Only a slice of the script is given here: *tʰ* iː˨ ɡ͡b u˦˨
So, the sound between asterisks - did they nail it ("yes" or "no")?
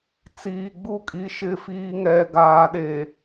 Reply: no